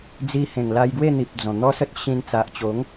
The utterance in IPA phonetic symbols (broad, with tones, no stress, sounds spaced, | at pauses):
d͡z i˧ h ẽ˨˩ ŋ l a˧ j ɡ w e˥˧ n̪ i˨ p̚ d͡z ɔ̃˨˩ n̪ ɔ˦ s ə˦ t̚ ɕ ĩ˧ n t͡s a˨ ʔ t͡ɕ o˨˦ ŋ